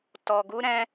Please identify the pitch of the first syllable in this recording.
low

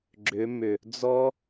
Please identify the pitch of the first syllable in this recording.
rising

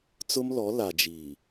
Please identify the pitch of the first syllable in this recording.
high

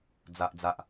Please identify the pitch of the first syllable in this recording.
low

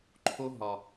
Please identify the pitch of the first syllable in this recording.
high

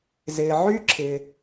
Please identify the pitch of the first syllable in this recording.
low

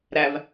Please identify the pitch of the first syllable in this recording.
low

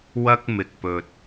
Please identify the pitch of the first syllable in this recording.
high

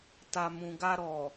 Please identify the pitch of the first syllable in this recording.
low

